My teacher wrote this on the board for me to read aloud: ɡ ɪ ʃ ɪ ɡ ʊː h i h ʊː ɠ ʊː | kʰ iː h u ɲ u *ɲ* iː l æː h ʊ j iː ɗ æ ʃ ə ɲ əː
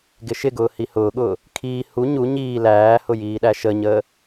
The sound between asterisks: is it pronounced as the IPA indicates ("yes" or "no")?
yes